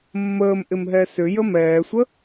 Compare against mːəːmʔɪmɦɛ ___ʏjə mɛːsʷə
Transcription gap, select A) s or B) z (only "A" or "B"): A